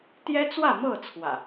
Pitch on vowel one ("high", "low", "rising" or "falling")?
high